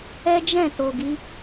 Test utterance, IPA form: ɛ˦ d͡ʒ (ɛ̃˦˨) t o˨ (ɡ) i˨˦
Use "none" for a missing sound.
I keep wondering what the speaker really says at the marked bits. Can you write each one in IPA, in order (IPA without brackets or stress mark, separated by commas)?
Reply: ɛ̃˦˨, ɡ